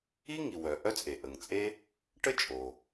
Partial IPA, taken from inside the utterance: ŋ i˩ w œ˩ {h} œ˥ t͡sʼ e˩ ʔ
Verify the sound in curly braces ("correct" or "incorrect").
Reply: incorrect